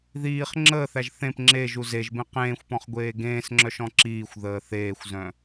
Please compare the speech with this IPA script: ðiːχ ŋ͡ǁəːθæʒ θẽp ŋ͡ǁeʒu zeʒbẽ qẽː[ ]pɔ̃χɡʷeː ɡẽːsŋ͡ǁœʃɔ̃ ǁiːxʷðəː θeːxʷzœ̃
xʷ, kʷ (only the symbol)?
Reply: xʷ